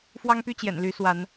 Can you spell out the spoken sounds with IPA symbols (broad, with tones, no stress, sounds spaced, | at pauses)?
f w ɑ˦ ŋ p y˦ t͡ɕ j ɛ̰˨˩ n l y˨˦ s w a˨˦ n